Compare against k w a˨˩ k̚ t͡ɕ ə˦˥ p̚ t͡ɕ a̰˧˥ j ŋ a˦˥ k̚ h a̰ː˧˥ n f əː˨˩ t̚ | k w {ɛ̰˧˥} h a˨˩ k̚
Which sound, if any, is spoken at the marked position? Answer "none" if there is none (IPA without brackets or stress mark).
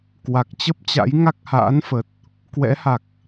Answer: ɛ̰˧˥